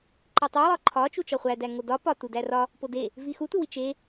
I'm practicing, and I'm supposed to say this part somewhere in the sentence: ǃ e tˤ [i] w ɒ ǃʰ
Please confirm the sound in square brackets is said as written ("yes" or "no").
yes